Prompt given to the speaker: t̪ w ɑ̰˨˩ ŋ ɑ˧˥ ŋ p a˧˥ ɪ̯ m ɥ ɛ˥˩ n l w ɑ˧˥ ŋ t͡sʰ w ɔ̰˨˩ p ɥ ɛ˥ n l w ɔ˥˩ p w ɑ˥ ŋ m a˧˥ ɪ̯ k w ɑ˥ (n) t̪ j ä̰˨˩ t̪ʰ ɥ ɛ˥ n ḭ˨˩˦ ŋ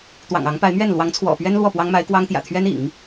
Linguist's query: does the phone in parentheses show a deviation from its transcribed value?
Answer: yes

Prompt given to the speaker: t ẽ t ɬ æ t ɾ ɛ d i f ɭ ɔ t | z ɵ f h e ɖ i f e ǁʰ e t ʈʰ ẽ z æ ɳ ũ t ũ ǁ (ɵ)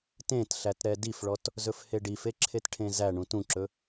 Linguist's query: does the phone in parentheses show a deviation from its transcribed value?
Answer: no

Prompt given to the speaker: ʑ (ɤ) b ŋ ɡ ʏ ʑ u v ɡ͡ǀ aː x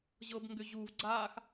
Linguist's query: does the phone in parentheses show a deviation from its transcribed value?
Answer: no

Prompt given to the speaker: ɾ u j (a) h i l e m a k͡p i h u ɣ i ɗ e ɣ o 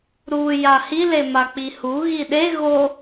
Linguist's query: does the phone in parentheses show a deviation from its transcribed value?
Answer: no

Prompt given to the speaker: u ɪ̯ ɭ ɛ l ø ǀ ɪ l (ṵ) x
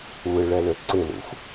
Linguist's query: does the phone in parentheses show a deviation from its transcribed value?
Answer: no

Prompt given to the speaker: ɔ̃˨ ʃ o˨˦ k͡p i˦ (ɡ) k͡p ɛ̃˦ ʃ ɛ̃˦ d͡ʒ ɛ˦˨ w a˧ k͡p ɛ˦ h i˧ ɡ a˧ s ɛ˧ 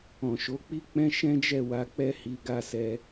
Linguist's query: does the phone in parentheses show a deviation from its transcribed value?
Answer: yes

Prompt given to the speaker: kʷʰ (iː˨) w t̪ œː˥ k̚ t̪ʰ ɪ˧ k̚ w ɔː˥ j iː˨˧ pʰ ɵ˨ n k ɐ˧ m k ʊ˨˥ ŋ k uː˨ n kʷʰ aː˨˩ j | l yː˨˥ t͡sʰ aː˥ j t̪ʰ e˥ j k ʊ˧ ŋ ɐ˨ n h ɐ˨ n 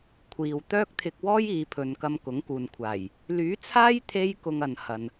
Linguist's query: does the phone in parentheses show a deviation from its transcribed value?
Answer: no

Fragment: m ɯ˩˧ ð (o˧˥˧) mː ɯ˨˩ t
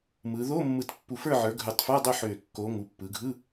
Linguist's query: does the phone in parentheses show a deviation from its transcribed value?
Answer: no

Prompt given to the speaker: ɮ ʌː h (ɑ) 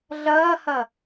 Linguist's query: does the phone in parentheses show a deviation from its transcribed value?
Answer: yes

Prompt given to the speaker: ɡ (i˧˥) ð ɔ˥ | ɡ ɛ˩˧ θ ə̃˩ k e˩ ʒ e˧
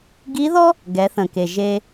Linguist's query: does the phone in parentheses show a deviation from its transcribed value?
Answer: no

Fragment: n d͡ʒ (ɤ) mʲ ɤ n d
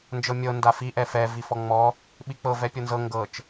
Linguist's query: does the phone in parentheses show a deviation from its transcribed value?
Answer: no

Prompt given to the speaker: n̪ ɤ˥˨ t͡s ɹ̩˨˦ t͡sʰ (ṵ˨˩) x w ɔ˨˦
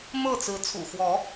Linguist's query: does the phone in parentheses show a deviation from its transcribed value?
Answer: no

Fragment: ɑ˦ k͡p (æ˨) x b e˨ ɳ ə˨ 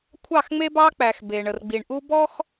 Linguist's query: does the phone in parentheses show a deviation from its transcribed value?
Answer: no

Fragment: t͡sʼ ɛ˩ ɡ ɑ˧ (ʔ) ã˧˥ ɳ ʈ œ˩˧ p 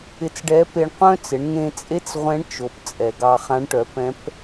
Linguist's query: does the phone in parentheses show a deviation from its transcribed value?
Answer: yes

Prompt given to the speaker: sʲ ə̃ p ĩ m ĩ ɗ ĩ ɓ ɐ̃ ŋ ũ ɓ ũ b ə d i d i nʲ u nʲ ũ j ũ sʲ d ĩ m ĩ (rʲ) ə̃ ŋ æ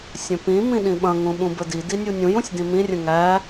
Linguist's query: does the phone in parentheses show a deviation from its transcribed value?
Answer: no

